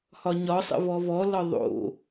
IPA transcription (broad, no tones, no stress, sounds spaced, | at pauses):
h ɒ ɲ ɒ sˤ ə̰ v ɔ v ɔ l ɒ ðˤ o̰